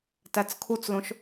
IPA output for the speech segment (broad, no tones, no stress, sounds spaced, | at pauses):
t æ t͡s kʰ u t͡s l õ ʃ